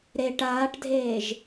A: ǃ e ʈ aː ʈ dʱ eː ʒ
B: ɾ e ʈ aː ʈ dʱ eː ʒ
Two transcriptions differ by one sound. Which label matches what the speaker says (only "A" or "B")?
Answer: B